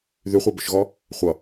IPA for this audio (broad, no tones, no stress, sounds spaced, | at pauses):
ð y χʷ e b ʊ ʃ ɣ ɔ | χʷ ʌ